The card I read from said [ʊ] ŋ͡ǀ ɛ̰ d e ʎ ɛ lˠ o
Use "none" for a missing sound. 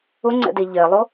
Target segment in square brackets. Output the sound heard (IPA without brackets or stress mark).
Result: ʊ